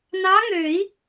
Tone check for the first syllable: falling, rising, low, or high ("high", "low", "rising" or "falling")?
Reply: rising